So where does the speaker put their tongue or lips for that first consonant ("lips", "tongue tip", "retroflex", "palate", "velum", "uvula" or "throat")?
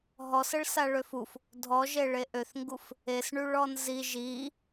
throat